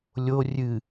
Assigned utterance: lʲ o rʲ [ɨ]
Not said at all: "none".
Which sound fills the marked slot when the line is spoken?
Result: ɨ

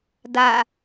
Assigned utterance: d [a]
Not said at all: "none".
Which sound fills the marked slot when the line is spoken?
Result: a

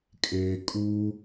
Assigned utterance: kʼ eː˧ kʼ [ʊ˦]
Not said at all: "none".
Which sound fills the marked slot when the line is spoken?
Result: u˦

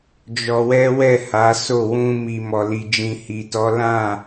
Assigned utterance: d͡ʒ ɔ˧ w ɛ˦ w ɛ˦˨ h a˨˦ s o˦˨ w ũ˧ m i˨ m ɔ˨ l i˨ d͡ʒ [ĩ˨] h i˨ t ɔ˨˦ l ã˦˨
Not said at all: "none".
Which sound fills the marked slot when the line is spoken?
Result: ĩ˨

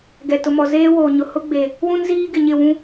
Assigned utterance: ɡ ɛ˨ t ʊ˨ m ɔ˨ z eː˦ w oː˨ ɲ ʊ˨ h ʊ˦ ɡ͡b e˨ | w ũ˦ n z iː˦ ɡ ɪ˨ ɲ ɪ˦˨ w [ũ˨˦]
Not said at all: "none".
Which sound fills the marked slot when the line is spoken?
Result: ũ˦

